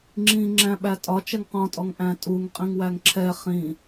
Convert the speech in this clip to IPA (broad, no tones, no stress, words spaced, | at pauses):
ŋ͡ǁĩŋ͡ǁæ̃ ɓætʼɒt͡ʃɛŋ qɔ̃tʼɔŋ ʔæ̃tʼuŋ qʼĩŋwæŋǁʰɛ χĩ